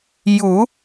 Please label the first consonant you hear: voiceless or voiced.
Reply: voiced